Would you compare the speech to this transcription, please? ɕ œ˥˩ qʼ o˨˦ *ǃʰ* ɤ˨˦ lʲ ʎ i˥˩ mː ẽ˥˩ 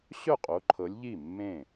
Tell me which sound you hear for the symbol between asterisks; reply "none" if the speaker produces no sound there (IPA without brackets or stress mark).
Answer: ǃʰ